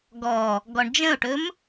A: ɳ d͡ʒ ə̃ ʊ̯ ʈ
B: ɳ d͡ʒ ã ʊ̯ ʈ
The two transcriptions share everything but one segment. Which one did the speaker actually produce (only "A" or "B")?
A